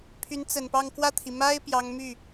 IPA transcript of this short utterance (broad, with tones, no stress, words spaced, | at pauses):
pʰy˧˥nt͡sə˨˩npɑ˥˧ŋ kwä˥˩t̪ʰi˩ ma˥ɪ̯ pjɑ˧˥ŋmy˥˩